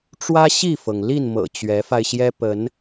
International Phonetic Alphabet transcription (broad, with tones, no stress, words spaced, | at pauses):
ʈ͡ʂwä˦ɕi˥˨fɤ˩ŋ li˥˨nmɤ̰˨˩ t͡ɕɥɛ˨˦fa˧ɪ̯ɕjɛ˦ pə˨˦n